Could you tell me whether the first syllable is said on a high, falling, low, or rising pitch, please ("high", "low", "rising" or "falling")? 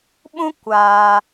high